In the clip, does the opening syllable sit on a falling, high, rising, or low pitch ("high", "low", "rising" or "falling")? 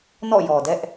falling